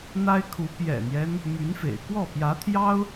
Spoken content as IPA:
n̪ a˥ ɪ̯ kʰ u˧˥ p j ɛ̰˨˩ n̪ j ɛ˦ n | m y˧˥ n f ḛ˨˩ ɪ̯ k w ɔ˥˩ p j ä˧˥ t̪ʰ j ɑ˥ ʊ̯

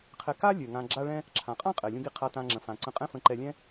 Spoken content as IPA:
qʰ ɛ˧ k a˥ lʲ ø˩ ŋ ã˧ ɡ͡ǁ a˥ ɭ ɛ̃˥ | ǁʰ ã˩ qʼ ã˥ qʼ ɛ˩ lʲ ũ˧ ɡ i˧ qʰ a˧ t ã˧ ŋ͡ǁ ə̃˩ f ã˩ ǀ ə̃˧ qʼ ɛ̃˥ f ə̃˧ ǃ ɛ˧ lʲ ɛ̃˥

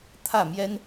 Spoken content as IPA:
t̪ʰ ä˥˩ m j ɛ˥ n

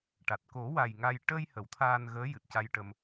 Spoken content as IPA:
ʈ a˨˩ t̚ k o˨˩˦ w a˨˩ j ŋ a˧ j ʈ ə˧ j h ə˨˩˦ w t̪ʰ aː˧ n ɣ əː˧˥ j ɨ˨˩ t̚ c a˧ j ʈ ə˧ m

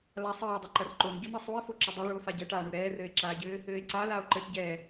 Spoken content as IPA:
l a sˤ ɘː dˤ ɐ ǃ ɐ r ǃ o n ɟ o n ɐ sˤ u e̯ f o ǁ ɘ dˤ ɛ ɭ u o̯ f a ɟ ɛ ʈ aː ɳ u ɾ ɛː r ɘː e̯ ǁ aː ɟ ɘː | ɘː e̯ ǀ a l aː o̯ ǃ ɘː ʈ ɟ ɛː

